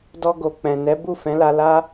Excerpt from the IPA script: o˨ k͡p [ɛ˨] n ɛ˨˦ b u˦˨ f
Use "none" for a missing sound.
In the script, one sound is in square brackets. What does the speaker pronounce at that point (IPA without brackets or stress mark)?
ɛ̃˨